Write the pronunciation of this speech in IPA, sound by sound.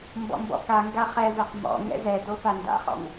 m b ɔ̰ m b ɔ̰ k a ŋ ɡ a χ ɛ v ɛ q m ɔ̰ ŋ ɛ̰ z ɛ d o f a n d a̰ χ ɔ̰ ŋ

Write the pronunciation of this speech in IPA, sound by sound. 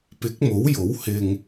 p ɪ˨˥ k̚ m o˨˥ w j o˨˥ w h ɪ˧ ŋ

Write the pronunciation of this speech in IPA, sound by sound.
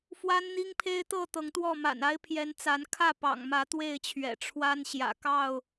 f w a˦ n n̪ i˦ ŋ pʰ e˦ ɪ̯ t̪ ɤ˥˨ t̪ ɤ˨˦ ŋ t̪ w ɔ˥˨ m a̰˨˩ n a˦ ɪ̯ pʰ j ɛ˨˦ n t͡s a˨˦ n kʰ ä˥˨ p ɑ̰˨˩ ŋ m ä˨˦ t̪ w e˥˨ ɪ̯ t͡ɕʰ ɥ ɛ̰˨˩ ʈ͡ʂʰ w a˦ n ɕ j ä̰˨˩ k ɑ˥˨ ʊ̯

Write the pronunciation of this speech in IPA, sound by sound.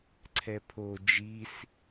ǀʰ ɛ pʰ o d͡ʒ i s

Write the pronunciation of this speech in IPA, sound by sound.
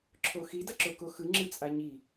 ǁʰ o x i d ʌ ǁ o k o x ɯ ŋ͡ǁ ɯ t͡sʼ a ɲ i

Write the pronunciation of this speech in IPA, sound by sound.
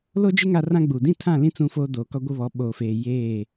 l o˦ d͡ʒ ɪ˦ ŋ a˦ r ã˦ ɡ͡b uː˨ d ĩ˦˨ tʰ ã˦˨ l ĩ˦ t͡s ũ˦ f oː˦ d oː˨ k ɔ˦ ɡʷ ɪ˦ β ɔ˨˦ ɓ oː˨ f eː˨ j eː˦˨

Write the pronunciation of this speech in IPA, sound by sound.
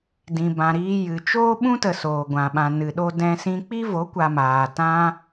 d ĩ˨ b ã˨ ɾ iː˧ j ɨ˨ t͡ʃ oː˦ ɓ ũ˦ t ə˨ s oː˨ ɡʷ ã˨ ɓ ã˨ n ɨ˨ ɗ o˦ d ɛ̃˧ s ĩ˧ k͡p i˦ v o˨˦ kʷ a˧ m aː˨ t ã˦

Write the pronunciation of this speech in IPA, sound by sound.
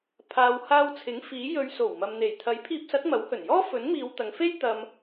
pʰ aː˨ w h aː˧ w t͡sʰ ɪ˨˥ ŋ f iː˨˥ j ɵ˧ ɥ s o˨˩ w m ɐ˨ m n̪ e˨˩ j t̪ʰ ɐ˨˥ j pʰ iː˧ p̚ s ɐ˨˥ t̚ m ɐ˨˥ w h ɵ˨˩ n j ɔː˥ f ɵ˨˥ n m iː˨˧ w t̪ ɐ˨ ŋ f e˥ j t̪ ɐ˧ m

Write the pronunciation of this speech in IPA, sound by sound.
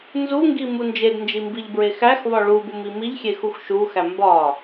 n z u ŋ ɡ i m u n d͡ʒ e d n d͡ʒ i m b i ʎ b ɹ e x æ x v ɒ ɭ u b u m i m i ʎ xʲ e x u x ʃ u x æ m b ɒ

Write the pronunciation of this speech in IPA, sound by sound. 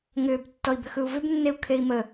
ŋ ʏː b tː ɔ i̯ b ʏ x ɯ u̯ v ʏ b nː e u̯ kʰ e i̯ m ə

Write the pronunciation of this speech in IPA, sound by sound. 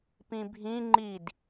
p ĩ bʱ ĩ ŋ͡ǃ i d

